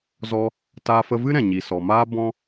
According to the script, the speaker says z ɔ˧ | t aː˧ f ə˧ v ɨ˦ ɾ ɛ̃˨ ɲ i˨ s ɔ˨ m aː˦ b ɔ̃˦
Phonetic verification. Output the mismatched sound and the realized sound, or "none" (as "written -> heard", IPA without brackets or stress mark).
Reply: none